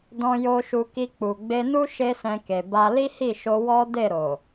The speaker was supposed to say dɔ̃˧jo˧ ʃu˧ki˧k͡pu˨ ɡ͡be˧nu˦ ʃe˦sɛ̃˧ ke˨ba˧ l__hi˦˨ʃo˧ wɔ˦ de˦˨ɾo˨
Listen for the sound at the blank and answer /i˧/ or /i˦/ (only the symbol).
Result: i˦